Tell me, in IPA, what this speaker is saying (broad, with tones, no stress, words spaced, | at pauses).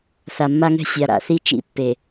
θa˨mːa˦ŋɛ̤˦ sʲa˨ɾa̰˨θi˦ t͡ʃḭ˦˨pːe˨